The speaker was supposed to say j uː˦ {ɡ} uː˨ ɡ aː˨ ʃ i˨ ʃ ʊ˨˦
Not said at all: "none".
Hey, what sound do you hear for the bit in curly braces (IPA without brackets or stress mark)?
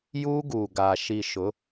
ɡ